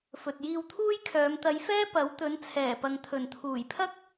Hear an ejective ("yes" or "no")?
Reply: no